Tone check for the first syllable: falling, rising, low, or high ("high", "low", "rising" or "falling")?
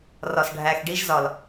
low